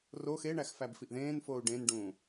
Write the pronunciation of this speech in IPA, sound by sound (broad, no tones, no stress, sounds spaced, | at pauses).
r o x e ɳ æ x f æ b f i ʔ ð ẽː n f oː u̯ ɖ ẽ n ɖ ũː